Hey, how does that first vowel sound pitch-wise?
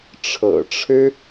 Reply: low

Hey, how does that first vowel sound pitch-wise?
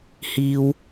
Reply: high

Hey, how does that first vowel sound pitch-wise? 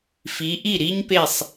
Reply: rising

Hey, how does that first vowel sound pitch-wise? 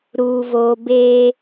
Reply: low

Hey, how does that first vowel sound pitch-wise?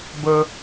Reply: high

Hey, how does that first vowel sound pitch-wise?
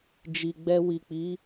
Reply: low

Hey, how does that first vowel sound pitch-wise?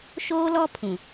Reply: high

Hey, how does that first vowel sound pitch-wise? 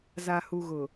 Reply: low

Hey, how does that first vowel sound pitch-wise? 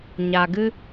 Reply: low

